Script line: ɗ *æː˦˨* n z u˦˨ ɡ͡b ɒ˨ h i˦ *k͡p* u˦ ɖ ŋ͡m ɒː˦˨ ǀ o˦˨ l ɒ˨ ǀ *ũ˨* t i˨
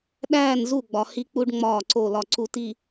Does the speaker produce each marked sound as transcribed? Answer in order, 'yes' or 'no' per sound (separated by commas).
yes, yes, no